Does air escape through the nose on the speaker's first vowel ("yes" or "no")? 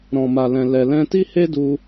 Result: yes